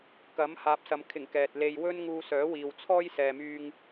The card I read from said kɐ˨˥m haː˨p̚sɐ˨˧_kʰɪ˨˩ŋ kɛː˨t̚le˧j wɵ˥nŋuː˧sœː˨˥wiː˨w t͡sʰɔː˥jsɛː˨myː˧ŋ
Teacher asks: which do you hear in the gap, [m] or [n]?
m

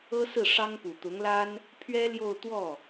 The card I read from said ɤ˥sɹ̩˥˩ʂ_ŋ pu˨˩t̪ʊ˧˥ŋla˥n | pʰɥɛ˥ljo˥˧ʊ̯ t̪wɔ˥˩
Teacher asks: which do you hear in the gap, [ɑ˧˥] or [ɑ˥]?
ɑ˥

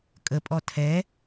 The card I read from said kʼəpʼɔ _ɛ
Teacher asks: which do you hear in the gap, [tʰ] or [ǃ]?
tʰ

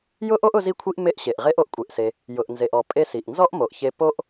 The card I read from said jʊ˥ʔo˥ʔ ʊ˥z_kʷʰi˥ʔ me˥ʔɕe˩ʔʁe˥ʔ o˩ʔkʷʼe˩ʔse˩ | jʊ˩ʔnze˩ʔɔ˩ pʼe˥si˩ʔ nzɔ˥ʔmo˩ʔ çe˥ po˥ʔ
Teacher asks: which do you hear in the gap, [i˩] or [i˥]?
i˥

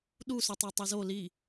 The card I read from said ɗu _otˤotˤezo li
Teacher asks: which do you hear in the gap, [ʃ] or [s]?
s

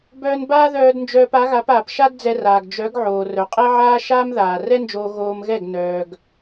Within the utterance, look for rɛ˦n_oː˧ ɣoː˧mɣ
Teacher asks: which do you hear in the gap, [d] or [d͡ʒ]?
d͡ʒ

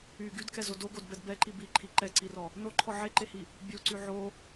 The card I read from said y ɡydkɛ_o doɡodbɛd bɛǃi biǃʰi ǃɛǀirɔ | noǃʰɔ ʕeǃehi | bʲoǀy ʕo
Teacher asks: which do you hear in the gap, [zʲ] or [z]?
z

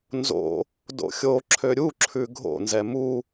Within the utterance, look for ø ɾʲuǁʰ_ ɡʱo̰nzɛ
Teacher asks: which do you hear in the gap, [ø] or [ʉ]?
ʉ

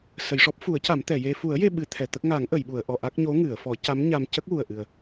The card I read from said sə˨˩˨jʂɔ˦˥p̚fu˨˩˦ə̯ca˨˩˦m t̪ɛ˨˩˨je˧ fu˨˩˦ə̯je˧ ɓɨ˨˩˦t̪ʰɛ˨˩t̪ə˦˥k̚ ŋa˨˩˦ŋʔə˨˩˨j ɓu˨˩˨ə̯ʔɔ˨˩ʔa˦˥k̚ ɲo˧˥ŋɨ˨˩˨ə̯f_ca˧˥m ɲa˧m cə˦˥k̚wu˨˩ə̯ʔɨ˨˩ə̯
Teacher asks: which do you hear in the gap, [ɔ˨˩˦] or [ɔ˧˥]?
ɔ˨˩˦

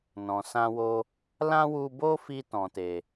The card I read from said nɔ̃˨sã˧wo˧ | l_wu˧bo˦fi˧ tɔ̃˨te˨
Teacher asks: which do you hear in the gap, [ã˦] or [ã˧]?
ã˦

